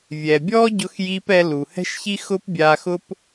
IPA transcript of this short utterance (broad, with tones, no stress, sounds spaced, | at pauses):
vʲ ɛ˩ bʲ ɔː˥ ɟ ʊ˧ x j iː˧ p ɛ˧ l u˩ h ɛ̤˥ ʃ ç i˥ x ʊ˥ p bʲ aː˧ x ʊ˥ p